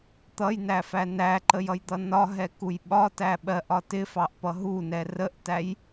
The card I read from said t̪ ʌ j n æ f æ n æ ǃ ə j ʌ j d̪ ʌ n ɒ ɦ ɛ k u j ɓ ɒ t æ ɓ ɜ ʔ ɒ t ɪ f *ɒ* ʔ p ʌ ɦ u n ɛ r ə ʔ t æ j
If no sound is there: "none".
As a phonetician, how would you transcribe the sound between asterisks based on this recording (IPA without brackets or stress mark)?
ɑ